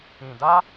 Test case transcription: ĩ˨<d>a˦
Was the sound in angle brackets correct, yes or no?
yes